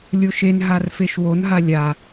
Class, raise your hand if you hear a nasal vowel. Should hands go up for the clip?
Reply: no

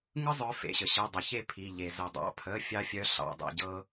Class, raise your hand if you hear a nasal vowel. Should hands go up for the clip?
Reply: no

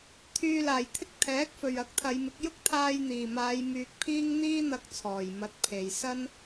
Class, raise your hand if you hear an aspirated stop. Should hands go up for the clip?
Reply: yes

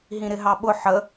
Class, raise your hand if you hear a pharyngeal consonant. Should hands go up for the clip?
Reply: yes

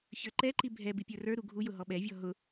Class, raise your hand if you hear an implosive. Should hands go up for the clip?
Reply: yes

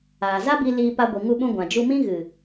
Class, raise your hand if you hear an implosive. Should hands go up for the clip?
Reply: yes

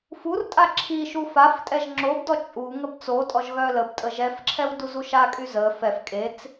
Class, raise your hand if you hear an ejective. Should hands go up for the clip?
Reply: yes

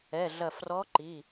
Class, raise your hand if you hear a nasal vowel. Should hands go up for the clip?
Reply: no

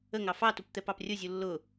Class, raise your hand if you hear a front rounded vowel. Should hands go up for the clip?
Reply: no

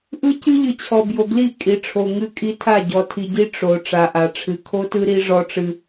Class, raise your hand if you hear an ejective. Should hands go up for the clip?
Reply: yes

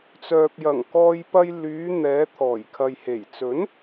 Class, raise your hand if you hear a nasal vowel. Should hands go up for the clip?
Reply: no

